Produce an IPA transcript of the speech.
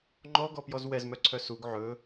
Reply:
ŋ͡ǃ ɔ ɡ ɔ p j ɔ z w ɛ z m œ ǀʰ œ s u ɡ ʕ ɵ

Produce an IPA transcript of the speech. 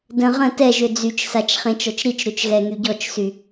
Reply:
d ə̃ ʁ ə̃ t ɛ ʒ ø d͡z y t͡ʃ s a t͡ʃ χ ẽ t͡ʃ ɔ t͡ʃ ɾ i t͡ʃ ɾ ø t͡ʃ ɣ ɛ ŋ y ɟ ɔ t͡ʃ s y

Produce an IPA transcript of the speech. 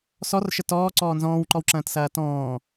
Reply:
s ɔ r ʃ ə t ɔː ǀ ɔː n z ɔ̃ː w ǃ ɔ w ǁ ɐ̃ː t s ɐː t ɔ̃ː

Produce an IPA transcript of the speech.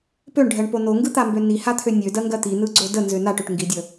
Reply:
p ø ɳ ɖʱ ɜ ɳ p o n o ŋ ɡ ɯ t̪ a m b ø n i h a t̪ʰ ø nʲ ø d ɜ ŋ ɡ ɜ t̪ i n ɯ ɡ͡ǀ o d ə n z ø n a ʈ ø ʈ ŋ ɡ i dʲ ə

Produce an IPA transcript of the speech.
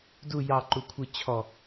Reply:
d u j ɑ ǃ u kʷʰ ɯ t͡ɕʰ ɔ

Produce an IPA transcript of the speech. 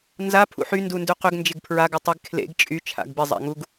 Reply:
n z a pʰ ṵ ħ y n d u n d ʉ q ʏ ɡ n d͡ʒ ɪ ɡ pʰ ɹ a ɡ ʉ tˤ ɪ ɡ kʰ l ḛ ɡ t͡ʃʼ y t͡ʃʰ a̰ ɡ b ɪ zˤ a̰ ŋ u ɡ

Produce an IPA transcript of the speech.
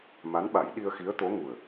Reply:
m a˧˥ n ɓ a˨˩˦ j ɗ i˧ ə̯ x i˧˥ ə̯ t̪ o˧˥ ŋ u˨˩ ə̯

